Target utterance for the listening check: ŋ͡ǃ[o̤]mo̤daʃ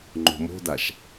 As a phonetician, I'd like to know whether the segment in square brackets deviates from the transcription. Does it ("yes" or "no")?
no